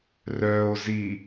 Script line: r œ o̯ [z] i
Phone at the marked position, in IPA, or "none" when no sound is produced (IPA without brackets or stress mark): z